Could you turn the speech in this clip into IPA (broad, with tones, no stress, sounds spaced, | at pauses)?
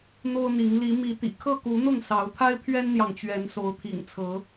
n̪ o˦ ʊ̯ n̪ i˨˦ ŋ l i˨˦ m i˨˦ t̪ ḭ˨˩ kʰ ɤ˥˨ k u˨˦ n̪ ʊ˥˨ ŋ s ɑ˨˦ ʊ̯ t̪ʰ a˦ ɪ̯ pʰ ɥ ɛ˦ n n̪ j ɑ˨ ŋ t͡ɕ ɥ ɛ˨˦ n s o˨˦ ʊ̯ t̪ʰ ḭ˨˩ ŋ t͡sʰ ɤ˨˦